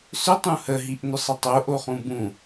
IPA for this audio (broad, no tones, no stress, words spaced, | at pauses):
sʏ tˤũhəɦiʔ nʏsˤɘtˤo ʔoχũbũ